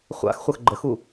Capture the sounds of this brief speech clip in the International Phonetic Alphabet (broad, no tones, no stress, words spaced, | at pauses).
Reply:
χʷa̰xχʷəx ɡ͡ǃəxu